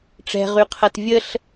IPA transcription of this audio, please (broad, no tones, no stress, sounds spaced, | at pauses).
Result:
ʈ͡ʂ ɛ̤ ʁ y qʰ ɐ t vʲ ə ɬ